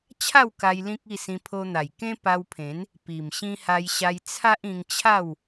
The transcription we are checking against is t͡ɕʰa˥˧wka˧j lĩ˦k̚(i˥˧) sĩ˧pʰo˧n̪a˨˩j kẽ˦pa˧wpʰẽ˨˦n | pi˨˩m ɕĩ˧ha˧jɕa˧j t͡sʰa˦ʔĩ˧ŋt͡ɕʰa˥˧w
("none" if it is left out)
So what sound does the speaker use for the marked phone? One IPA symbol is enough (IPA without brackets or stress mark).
i˥˧